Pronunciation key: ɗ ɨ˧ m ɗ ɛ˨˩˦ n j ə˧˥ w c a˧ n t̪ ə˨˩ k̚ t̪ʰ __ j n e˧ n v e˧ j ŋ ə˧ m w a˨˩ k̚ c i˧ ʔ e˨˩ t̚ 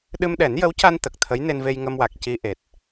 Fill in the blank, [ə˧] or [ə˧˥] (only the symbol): ə˧˥